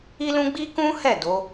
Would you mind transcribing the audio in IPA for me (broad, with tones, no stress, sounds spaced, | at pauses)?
i˦ l ũ˦ ɡ͡b i˦ k ũ˦ h ɛ˦˨ d o˨˦